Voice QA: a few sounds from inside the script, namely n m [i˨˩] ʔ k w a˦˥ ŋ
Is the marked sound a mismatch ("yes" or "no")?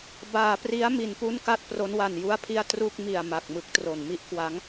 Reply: yes